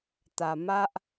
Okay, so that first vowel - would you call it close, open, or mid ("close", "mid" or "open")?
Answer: open